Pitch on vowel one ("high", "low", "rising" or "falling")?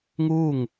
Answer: falling